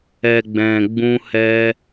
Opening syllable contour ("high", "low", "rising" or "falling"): low